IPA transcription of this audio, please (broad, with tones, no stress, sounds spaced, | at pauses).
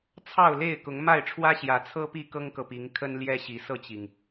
t͡sʰ ɑ˥˨ ʊ̯ l e˥˨ ɪ̯ k ʊ˨˦ ŋ m a˥˨ ɪ̯ ʈ͡ʂʰ w ä˦ ɕ j ä˨˦ t͡sʰ ɤ˦ p i˥˨ k ɤ˦ ŋ k ɤ˨ p i˨˦ ŋ kʰ ə˦ n l j ɛ˦ ɕ i˨˦ s ɤ˥˨ t͡ɕ i˩ ŋ